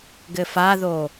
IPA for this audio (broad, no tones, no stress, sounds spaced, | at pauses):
ɡ ɘ f a ð o